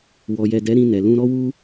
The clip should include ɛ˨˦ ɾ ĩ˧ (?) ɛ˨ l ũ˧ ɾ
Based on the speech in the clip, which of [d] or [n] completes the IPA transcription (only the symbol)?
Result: n